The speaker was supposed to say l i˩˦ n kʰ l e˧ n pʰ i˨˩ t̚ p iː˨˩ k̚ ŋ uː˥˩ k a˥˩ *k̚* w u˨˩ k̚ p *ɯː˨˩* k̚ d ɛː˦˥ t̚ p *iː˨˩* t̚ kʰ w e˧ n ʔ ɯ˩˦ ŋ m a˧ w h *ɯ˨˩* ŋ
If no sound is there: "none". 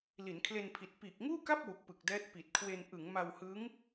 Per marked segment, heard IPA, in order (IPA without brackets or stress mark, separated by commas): p̚, ɯ˨˩, i˨˩, ɯ˦˥